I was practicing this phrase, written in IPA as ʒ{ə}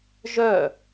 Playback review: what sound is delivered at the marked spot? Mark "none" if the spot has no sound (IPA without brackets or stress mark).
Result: œ